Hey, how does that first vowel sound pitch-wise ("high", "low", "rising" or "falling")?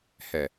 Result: low